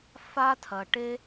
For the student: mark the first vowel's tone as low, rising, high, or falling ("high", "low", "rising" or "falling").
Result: high